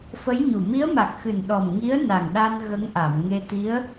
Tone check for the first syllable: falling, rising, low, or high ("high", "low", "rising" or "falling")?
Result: rising